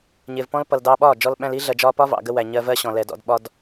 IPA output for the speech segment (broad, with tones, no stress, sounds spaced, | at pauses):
ɲ ɪː˨ v p ɔ̃˦ l p ʌ˨ l d ɑː˧ ɓ ɒː˦˨ d͡ʒ ɔ˧ l ɓ æ̃˧ l i˦ ɮ ɜ˨ d͡ʒ ɒː˧ p ɒ˦ v ɑ̰˨ ɡ ə˧ w æ˨ ɲ ɜ˧ v ɜ˦ ɕ ɔ̃˨ l ɛ˨ d ɔ̰˧ d ɓ ɒ˦ d